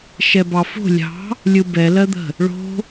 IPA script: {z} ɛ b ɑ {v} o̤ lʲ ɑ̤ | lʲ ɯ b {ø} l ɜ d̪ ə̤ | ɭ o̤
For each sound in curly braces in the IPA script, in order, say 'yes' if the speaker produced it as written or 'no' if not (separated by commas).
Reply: no, no, no